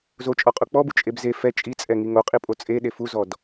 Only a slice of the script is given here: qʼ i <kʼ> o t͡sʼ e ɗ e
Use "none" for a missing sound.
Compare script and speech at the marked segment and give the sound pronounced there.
pʼ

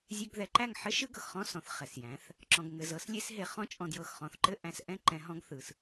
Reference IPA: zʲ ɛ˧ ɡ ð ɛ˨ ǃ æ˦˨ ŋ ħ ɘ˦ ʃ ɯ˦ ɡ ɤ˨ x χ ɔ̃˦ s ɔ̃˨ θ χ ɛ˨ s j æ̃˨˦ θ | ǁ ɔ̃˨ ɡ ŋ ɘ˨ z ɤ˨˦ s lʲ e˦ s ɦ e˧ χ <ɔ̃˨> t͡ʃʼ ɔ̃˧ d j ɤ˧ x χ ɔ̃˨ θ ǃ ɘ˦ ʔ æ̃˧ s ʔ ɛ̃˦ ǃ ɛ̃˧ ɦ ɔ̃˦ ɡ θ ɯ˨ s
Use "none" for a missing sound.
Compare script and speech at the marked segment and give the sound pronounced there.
ɔ̃˦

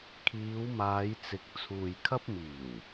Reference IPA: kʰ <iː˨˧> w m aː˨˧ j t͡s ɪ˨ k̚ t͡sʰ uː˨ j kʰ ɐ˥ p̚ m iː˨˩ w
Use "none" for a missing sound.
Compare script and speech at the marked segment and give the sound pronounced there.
iː˨˧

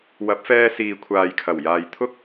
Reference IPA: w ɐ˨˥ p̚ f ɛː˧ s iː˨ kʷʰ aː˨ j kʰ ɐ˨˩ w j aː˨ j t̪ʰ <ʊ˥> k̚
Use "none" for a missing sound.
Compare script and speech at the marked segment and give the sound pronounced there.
ʊ˥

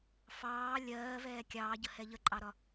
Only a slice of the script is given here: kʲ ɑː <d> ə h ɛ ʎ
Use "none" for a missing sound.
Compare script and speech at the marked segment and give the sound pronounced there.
ɟ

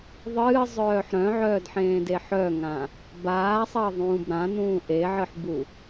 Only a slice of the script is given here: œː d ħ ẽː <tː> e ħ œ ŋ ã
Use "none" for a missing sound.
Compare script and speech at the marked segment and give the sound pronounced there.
d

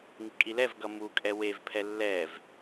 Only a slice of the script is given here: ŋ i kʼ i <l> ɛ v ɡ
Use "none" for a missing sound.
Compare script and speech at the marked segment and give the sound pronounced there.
l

